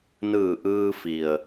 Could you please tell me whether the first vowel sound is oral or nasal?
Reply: oral